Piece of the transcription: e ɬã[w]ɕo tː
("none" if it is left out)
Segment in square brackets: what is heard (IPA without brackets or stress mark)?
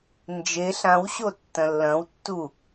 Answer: w